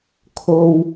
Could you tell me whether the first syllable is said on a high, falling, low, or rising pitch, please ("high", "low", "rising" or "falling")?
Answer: low